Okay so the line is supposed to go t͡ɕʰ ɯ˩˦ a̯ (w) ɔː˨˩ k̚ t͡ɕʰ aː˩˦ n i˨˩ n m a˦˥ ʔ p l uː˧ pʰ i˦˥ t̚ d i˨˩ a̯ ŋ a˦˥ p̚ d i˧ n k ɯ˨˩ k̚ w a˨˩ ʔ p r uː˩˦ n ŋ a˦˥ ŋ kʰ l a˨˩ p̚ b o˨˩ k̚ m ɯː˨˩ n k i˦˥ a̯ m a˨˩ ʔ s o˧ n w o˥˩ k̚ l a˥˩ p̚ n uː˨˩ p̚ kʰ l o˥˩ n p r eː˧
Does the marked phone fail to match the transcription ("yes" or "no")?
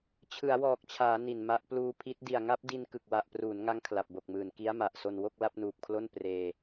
no